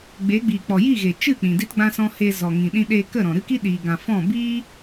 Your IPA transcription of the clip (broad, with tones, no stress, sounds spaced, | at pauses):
ɡ͡b e˨˦ ɡ͡b iː˨ k͡p ɔ˨ j i˦˨ ɣ e˨ t͡ʃ ɨ˦˨ k͡p ĩ˨ d i˦ t ɡ͡b ã˦ s ɔ̃˦ h e˧ z ɔ˨ ŋ ĩ˨ ɗ ĩ˧ ɗ eː˧ k ə˦˨ ɾ ɔ̃˨ ɾ ɨ˦ k i˦ ɗ iː˨ ɡ ã˨ f ɔ̃˦˨ b iː˦